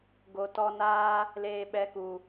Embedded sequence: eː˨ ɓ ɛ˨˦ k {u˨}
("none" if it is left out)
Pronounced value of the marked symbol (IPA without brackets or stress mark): u˨